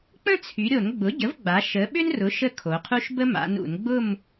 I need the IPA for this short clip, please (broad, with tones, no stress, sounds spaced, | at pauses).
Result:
k͡p ə̃˥˧ t͡sʰ y˩˧ ɾʲ o˧˩˧ n ɡ͡b ʊ˩˥ ɟ ə˩˥ v ɡ͡b a˩˧ ʃ ə˩˧ ɓ ʏ˥ n r ʊ˩˥ ʃ ə˥˧ kʰ o˩˧ qʰ u˥ ʃ b ə˥ m a̰˩˧ n ṵ˧˩˧ n ɡ͡b ʊ˥˧ m